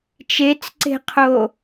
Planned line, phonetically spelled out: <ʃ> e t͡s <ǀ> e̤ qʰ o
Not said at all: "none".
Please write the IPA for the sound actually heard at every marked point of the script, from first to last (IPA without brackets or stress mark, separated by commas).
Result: t͡ʃ, ǀ